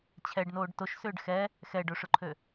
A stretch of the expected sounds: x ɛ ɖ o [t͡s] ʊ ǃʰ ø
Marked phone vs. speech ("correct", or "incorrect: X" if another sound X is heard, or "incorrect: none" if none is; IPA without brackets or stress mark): incorrect: ʂ